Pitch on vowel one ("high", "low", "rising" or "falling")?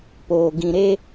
low